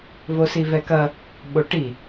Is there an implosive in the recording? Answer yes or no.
yes